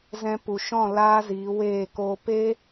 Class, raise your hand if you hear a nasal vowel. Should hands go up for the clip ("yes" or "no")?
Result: yes